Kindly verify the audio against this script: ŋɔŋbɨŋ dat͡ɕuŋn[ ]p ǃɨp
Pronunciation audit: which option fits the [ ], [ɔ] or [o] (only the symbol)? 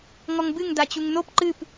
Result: o